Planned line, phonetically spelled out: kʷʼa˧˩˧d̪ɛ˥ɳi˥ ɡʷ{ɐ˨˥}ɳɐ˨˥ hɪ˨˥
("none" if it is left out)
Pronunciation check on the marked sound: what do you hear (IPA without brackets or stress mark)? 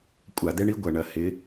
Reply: ɐ˩˧